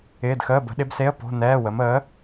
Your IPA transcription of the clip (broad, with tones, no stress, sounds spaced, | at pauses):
ɪː˧˥˧ d x əː˧˥˧ b ə̤˨˥ ɗ ɪ˨˥ b s e˧˥˧ ə̯ p o̤˧˥˧ n ɛː˧˥˧ w ə˨˥ m əː˨˥